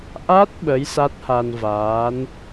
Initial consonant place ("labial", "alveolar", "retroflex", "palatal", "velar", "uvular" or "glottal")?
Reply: glottal